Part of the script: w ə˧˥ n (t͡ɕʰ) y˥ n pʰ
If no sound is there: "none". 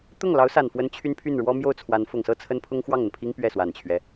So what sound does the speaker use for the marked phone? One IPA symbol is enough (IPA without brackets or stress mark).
t͡ɕʰ